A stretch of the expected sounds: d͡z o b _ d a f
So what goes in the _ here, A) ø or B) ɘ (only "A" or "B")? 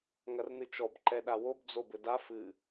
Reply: B